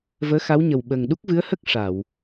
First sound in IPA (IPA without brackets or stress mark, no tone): v